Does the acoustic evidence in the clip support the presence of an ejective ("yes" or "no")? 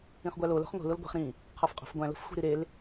yes